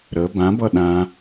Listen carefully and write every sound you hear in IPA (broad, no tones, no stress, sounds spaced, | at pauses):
ɾ ə b ã b ʌ ɗ ã